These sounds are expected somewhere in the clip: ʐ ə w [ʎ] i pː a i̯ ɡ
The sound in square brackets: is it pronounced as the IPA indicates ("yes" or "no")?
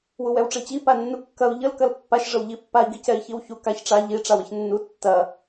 yes